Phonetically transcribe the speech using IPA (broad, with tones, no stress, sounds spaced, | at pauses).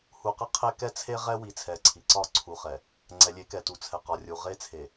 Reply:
h u˨ q ə˦ qʰ e˦ k ɛ˦ t͡sʰ e˦ ʁ ɛ˦ w i˨ t͡sʰ ɛ˨ ǀʰ i˨ ǀ ɒ˦˨ ǀʰ u˨ χ ɛ˨ | ŋ͡ǀ ɛ˨ lʲ e˨˦ k ɛ˨ t u˨ t͡sʰ ɛ˨ q ɒ˨ rʲ u˨ ʁ e˦˨ t͡sʰ e˨